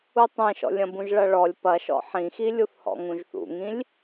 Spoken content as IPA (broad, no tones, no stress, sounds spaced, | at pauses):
u tˤ ẽ ʃ ɔ̰ lʲ ɐ̃ b ũ ʒ ɭ ɐ ɭ ɔ lʲ p ɐ ʃ ɔ̰ ħ ĩ x i lʲ u θ h ɔ̰ ŋ ũ ʒ θ ṵ ŋ ĩ lʲ